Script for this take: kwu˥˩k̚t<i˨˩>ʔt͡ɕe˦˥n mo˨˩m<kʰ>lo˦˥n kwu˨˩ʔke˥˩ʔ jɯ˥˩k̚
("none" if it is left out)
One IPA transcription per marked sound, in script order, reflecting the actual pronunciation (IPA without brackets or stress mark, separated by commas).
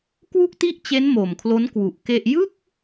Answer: i˥˩, kʰ